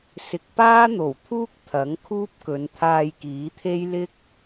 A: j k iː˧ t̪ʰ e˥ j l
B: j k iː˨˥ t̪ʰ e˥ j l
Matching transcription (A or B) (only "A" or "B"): B